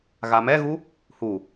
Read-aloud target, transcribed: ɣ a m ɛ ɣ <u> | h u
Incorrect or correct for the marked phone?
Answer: correct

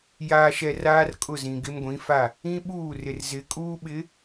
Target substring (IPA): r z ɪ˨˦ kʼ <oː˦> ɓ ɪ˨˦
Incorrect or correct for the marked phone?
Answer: incorrect: uː˦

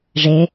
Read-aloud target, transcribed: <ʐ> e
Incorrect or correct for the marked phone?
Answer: correct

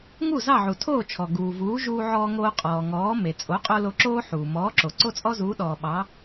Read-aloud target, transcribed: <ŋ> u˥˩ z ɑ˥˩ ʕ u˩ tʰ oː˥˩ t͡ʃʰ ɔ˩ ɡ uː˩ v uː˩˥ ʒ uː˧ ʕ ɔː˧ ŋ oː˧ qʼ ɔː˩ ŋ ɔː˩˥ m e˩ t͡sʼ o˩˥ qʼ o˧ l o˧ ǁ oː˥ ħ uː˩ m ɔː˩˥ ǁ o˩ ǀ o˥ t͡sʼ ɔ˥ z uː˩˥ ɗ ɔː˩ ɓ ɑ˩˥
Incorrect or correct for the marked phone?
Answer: correct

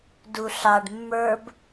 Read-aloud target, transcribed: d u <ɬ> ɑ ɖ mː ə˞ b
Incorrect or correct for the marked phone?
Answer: correct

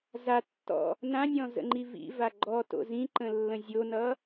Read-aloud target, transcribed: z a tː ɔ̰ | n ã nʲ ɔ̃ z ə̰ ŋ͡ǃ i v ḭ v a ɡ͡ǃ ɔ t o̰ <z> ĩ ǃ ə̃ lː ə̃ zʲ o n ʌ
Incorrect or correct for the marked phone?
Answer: correct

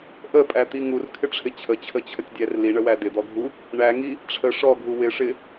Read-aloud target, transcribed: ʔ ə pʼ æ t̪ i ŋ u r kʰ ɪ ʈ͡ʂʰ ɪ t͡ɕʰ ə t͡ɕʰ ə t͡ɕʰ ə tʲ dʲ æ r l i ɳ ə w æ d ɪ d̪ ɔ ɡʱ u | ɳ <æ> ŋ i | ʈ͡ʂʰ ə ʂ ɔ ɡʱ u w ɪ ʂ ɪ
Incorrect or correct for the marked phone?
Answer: correct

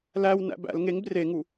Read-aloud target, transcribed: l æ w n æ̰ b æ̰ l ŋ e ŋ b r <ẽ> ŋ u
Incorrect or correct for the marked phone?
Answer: incorrect: e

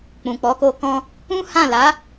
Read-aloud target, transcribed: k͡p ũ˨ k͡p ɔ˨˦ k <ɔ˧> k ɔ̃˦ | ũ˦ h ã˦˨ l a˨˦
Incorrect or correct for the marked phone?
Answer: incorrect: o˧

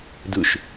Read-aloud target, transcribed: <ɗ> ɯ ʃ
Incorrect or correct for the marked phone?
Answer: incorrect: d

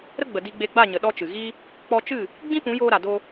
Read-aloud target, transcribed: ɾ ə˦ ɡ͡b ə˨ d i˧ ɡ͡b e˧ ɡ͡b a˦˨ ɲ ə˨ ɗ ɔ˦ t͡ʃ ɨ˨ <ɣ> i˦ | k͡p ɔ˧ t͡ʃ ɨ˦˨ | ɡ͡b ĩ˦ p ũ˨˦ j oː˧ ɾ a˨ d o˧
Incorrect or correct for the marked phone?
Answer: correct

